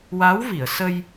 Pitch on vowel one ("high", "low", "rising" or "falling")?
rising